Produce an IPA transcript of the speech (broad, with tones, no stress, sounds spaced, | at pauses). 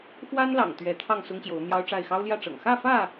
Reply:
x w a˦ n l ɑ̰˨˩ ŋ t̪ ɥ ɛ˨˦ t̪ʰ ɑ˥˨ ŋ s ʊ˦ ŋ ɕ j o˨˦ ʊ̯ n̪ j ɑ˦ ʊ̯ ʈ͡ʂ a˥˨ ɪ̯ x ɑ˦ ʊ̯ l j ä˥˨ ʈ͡ʂ ɤ̰˨˩ ŋ x ä˥˨ f ä˥˨